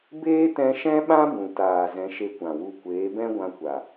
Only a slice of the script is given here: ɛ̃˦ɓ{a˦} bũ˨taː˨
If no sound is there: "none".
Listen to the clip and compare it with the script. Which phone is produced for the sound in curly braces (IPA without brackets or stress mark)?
ã˦